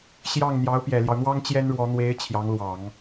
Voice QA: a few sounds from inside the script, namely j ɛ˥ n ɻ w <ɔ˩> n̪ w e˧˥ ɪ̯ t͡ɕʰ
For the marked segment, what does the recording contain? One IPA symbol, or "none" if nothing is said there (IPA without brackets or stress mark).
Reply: ɔ˧˥